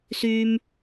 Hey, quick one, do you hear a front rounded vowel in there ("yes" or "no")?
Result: yes